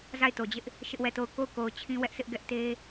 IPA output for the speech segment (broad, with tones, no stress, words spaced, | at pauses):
za˦˨ɪ̯to˨d͡ʑɪ˦ʔ | ʃɪ˦ʔwɛ˦˨to˦˨ʊ̯ ko˦˨ʊ̯ko˨ʊ̯ t͡ɕʰĩ˦wɛ˦ʔsɪ˦ʔ ɡɛ˦ʔte˦